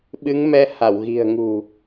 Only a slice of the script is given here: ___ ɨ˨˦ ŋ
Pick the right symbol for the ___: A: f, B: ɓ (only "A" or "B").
B